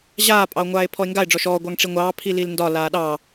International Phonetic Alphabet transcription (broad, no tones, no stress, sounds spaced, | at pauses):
ʑ aː pʼ ɑ o̯ ŋʷ aː e̯ pʰ ɔ e̯ ŋ ɡ a e̯ ɖ͡ʐ ɔ ʃ ɔː ɡʷ ɑ ŋ ʈ͡ʂ i ŋʷ ɑː pʰ i l i l n d ɒ l aː ɗ ɑ